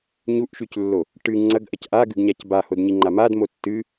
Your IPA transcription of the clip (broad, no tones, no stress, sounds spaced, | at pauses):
ɲ u ʔ ʃ ʉ c lː o | ʈ ɨ ŋ͡ǀ ɐ ɡ ʔ ɐ c ʔ a ɡ ʉ ɡ ɲ a c b a h o d ɲ i ŋ͡ǃ a m a d m o tː ɨ